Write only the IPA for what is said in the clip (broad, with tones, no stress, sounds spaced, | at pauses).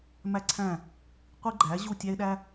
m æ˥ ǀʰ æ̃˥˩ | qʷ i˥ ɡ͡ǃ æ˩˥ ʑ u˥˩ tʲ æ˥ ɪ̯ ɗ æ˥